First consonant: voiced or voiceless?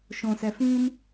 voiceless